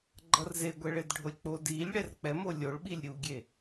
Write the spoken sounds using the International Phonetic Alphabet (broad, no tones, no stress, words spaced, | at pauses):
ɡ͡ǃʌrzeɡʷɛɭed ɖʱolʲk͡po dilʲ ɽɛrk͡pɛ molʲoɭ ɓilʲɾʲuɡʲe